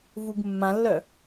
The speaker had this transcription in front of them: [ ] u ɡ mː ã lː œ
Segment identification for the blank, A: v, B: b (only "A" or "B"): A